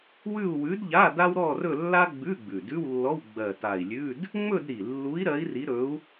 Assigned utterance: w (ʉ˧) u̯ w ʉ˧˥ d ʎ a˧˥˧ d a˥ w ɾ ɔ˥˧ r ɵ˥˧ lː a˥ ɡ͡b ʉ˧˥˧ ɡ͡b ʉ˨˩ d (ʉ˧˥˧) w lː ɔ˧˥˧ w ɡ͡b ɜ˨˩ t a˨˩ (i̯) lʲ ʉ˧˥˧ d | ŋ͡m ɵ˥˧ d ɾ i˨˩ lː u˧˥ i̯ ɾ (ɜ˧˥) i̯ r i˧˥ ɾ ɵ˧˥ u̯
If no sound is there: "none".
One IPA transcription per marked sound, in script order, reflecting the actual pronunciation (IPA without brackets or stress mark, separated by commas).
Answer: ʉ˥˧, ʉ˧˥˧, i̯, ɜ˧˥